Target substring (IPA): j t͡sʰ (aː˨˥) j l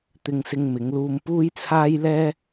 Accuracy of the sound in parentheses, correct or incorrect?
incorrect